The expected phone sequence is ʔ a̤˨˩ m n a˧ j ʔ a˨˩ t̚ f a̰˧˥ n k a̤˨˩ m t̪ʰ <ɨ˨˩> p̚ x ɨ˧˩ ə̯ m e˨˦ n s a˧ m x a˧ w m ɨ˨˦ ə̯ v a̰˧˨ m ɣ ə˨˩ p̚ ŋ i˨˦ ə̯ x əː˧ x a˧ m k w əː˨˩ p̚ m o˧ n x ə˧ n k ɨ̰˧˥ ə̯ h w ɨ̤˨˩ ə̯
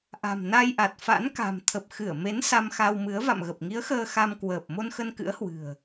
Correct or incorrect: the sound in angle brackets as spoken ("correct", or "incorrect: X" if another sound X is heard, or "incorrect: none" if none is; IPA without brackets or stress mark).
incorrect: ə˨˩